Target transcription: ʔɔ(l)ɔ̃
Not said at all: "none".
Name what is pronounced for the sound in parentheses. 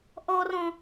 r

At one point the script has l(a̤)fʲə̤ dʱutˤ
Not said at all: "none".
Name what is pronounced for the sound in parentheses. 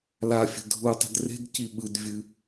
a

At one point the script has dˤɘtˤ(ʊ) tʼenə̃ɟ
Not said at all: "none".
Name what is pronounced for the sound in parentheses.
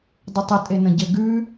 ə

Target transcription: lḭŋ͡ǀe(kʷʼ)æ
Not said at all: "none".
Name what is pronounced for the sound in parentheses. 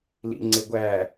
ɡʷ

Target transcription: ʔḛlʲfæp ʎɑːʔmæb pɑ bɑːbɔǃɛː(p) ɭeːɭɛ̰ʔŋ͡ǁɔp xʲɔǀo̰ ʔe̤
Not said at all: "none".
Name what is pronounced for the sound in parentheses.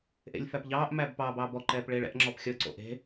p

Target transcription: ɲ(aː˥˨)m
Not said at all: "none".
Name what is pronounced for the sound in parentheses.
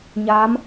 aː˧˥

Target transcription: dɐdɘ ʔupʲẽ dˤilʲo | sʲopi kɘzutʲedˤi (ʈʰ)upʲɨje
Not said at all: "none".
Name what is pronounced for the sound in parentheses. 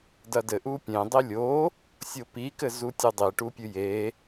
ʈ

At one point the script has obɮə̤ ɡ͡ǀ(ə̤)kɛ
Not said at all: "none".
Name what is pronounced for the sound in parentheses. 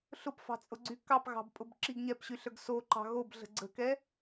ə̤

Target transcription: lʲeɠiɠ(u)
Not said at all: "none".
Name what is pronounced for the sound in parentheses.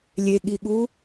u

